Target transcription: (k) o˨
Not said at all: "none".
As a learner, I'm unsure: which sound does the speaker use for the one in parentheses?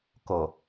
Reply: k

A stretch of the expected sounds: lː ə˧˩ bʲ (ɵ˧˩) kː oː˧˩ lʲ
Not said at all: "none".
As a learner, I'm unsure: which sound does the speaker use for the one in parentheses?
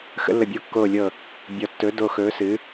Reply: o˧˩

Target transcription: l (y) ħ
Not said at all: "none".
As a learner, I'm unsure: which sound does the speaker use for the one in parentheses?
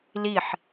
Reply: i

